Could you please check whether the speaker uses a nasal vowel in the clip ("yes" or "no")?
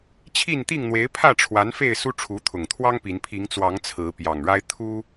no